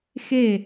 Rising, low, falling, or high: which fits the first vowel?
falling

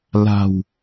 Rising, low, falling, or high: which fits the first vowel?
low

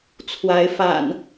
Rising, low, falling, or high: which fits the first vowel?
rising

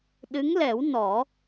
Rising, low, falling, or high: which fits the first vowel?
rising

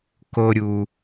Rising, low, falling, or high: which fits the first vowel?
low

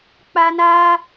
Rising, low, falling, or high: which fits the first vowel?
high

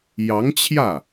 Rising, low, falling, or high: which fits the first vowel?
rising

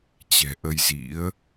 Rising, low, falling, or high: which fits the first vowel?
low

